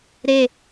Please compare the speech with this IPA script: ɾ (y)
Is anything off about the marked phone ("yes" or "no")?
yes